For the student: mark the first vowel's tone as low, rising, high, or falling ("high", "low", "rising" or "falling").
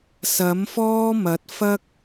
rising